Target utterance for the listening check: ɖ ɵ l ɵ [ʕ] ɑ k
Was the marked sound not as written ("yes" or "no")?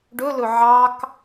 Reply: no